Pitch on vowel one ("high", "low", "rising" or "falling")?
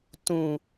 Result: low